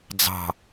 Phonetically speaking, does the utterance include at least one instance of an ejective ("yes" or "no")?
no